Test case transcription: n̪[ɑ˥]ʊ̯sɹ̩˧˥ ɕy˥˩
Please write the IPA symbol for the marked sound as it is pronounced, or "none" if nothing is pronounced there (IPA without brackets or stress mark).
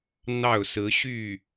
ɑ˥˩